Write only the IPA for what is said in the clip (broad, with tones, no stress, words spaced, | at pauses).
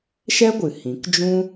ʃɛ˦ɡʷɨ˨ hĩ˨˦k d͡ʒũ˦